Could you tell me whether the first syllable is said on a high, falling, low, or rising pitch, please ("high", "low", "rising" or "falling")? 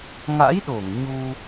rising